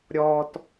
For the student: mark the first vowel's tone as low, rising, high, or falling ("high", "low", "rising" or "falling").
low